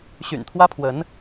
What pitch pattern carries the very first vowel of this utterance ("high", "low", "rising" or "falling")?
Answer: low